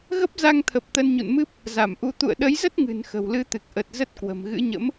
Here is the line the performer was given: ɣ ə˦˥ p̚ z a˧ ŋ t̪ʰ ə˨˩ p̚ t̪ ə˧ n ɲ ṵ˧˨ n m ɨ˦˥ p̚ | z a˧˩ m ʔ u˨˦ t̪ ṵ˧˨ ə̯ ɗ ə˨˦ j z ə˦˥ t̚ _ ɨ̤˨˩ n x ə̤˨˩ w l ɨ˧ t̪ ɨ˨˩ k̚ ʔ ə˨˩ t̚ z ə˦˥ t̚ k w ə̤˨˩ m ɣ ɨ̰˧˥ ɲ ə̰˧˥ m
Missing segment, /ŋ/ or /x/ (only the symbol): ŋ